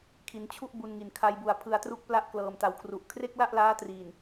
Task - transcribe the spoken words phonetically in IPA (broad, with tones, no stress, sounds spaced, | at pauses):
kʰ i˩˦ n t͡ɕʰ u˥˩ ʔ b u˧ n ŋ i˨˩ n kʰ a˧ j b u˨˩ a̯ pʰ ɯ˧ a̯ t r u˥˩ k̚ p l a˥˩ ʔ k l ɤː˨˩ m t a˨˩ w kʰ r u˨˩ ʔ kʰ r e˥˩ k̚ l a˥˩ ʔ l aː˦˥ t r iː˨˩ n